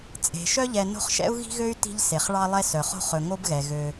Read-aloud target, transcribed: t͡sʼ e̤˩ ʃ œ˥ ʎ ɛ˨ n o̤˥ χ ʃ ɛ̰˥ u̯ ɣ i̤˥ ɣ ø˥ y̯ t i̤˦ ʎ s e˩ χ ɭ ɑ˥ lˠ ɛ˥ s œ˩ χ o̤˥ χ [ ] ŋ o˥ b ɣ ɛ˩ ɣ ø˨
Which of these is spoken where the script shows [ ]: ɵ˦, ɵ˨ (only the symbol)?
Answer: ɵ˨